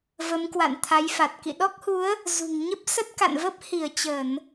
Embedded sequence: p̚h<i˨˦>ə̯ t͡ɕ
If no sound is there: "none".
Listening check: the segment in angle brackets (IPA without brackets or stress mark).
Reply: i˧˩